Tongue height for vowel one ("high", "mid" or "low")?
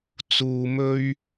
high